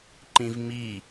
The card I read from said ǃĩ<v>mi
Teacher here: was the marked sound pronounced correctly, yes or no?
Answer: yes